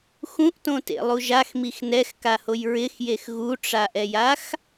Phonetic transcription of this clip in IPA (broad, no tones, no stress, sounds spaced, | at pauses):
x ũ ʔ t õ t ḛ lˠ u ʒ a x m i x n ɛ x k a h o j ɹ ɪ x j e x ɣ u ʈ͡ʂ a ʔ ɛ j a x